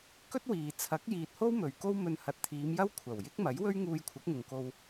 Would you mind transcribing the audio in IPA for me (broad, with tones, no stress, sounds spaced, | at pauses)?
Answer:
k ɵ˥ t̚ w iː˨ t͡sʰ ɐ˨˥ k̚ j iː˨ t̚ h o˥ w m ɵ˨ ɥ k o˥ w m ɵ˧ n h ɐ˨ t̚ t̪ʰ iː˨˧ m j ɐ˥ w kʷʰ ɐ˨˩ w j ɪ˥ k̚ m ɐ˨˥ j w ɵ˥ ɥ ŋ uː˧ j kʷʰ ɐ˨˥ k̚ ŋ ʊ˨ ŋ k o˧ w